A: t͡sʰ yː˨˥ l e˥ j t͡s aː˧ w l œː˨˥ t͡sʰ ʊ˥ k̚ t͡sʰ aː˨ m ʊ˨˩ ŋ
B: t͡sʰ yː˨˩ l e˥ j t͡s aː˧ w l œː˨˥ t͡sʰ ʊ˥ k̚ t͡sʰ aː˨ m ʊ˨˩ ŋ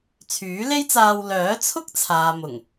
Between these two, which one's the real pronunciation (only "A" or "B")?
A